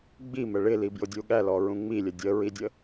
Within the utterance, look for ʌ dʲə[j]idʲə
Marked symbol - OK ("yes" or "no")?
no